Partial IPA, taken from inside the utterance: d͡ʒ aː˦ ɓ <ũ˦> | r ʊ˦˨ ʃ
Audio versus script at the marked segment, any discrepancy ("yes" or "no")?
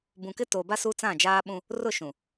no